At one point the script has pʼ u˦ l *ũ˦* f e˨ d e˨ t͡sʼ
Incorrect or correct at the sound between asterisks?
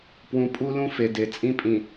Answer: correct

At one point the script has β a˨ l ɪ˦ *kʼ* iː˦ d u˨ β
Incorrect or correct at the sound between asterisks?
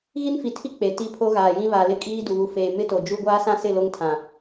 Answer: correct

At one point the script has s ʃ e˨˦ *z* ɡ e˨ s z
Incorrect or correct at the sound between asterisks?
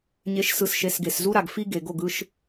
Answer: incorrect: s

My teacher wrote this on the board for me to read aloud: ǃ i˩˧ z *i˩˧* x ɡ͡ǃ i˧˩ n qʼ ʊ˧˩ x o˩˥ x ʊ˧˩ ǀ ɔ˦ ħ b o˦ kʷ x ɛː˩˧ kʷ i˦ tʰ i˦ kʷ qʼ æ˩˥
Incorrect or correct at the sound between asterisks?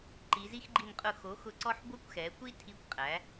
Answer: incorrect: i˦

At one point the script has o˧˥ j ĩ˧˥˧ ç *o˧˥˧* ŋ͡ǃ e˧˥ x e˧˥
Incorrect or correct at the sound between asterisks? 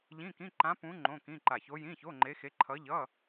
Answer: correct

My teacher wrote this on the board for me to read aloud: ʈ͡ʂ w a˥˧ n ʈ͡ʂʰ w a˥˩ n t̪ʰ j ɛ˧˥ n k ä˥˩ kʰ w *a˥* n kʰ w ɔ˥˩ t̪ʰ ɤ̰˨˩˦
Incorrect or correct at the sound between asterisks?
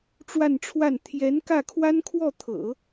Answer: correct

